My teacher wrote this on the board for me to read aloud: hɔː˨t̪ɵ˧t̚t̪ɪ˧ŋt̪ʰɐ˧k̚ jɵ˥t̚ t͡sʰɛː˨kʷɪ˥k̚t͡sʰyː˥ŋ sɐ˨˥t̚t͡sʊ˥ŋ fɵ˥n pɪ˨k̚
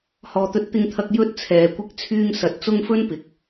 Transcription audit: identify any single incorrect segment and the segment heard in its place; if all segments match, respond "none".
none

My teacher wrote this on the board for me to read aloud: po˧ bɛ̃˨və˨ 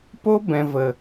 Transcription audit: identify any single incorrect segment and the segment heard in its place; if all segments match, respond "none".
none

